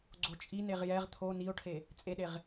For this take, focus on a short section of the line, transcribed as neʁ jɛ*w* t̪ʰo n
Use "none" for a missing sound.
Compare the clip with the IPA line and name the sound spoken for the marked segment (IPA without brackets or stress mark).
ʁ